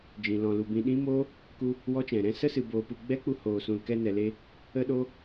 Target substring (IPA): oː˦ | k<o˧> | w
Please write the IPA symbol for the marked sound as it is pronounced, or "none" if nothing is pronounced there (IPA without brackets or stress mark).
u˧